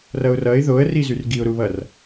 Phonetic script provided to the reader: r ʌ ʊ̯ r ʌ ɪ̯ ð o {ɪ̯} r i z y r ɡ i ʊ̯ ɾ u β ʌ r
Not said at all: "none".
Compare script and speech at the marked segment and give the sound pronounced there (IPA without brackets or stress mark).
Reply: ə̯